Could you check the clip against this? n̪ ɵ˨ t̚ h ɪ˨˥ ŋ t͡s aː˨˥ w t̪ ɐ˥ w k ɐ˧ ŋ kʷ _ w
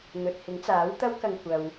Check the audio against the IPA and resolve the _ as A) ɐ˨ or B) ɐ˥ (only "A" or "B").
A